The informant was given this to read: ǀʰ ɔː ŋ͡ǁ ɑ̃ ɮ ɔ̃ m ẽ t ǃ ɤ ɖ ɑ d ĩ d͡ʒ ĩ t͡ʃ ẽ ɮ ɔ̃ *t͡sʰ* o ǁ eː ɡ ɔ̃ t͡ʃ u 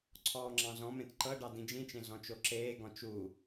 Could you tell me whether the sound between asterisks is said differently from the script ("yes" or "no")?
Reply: yes